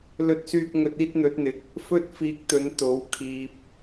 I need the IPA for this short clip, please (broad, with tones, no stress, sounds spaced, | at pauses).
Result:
l ɵ˥ t̚ s yː˥ k̚ ŋ ɵ˧ t̚ iː˥ t̚ n̪ ɵ˨˥ t̚ n̪ ɪ˨˥ k̚ | f ɵ˥ t̚ f iː˧ k̚ t̪ ɵ˨˧ n t̪ o˨˥ w kʰ iː˧ p̚